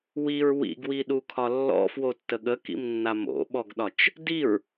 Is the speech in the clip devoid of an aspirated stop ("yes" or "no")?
no